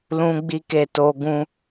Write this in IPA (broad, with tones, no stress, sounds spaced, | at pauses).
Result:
l ũ˦ ɡ͡b i˦ k e˦˨ t o˧ ɡ ũ˦